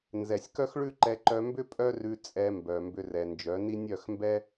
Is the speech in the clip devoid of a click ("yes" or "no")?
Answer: no